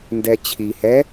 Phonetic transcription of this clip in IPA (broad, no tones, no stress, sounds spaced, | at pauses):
n d ɛ t͡ɕʰ i h ɛ